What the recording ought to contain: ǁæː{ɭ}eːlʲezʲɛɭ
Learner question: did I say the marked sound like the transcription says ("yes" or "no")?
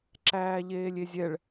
no